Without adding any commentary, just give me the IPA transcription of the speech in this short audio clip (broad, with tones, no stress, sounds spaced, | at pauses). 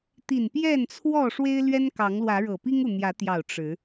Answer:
t̪ i˨˩ n p j ɛ˥˨ n t͡sʰ w ɔ˥˨ ʂ w e˦ ɪ̯ l ɥ ɛ˦ n k ɑ˨˦ ŋ l w ä˨˦ ɻ ɤ˨˩ p i˦ ŋ u˨ n̪ j ä˨˦ t̪ j ɑ˨˩ ʊ̯ ʈ͡ʂ ɻ̩˨˦